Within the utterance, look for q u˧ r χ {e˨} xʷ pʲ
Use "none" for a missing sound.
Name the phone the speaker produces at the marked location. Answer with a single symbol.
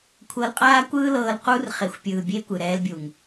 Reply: e˨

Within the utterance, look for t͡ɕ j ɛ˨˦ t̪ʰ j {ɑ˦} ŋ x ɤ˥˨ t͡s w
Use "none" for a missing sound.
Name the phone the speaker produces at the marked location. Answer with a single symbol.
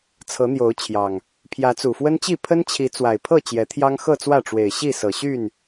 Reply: ɑ˦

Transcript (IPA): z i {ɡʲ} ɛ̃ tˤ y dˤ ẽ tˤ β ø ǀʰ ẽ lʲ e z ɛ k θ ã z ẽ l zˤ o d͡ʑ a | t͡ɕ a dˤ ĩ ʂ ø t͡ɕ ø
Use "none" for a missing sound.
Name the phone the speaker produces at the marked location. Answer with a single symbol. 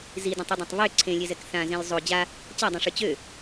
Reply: d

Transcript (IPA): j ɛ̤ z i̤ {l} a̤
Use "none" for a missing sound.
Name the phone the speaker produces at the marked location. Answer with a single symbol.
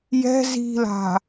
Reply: l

